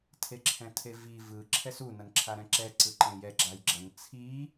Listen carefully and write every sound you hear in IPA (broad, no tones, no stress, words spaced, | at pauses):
tʰeǁʰɛ̃tʰevi vɯ ǁʰɛsu nʌnǁʰaɾɛ̃ǁɛ ǀɯǃẽjɛ ɡ͡ǁajɡ͡ǁʌn t͡sʰi